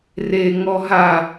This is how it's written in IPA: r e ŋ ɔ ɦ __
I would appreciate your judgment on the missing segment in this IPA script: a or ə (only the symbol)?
a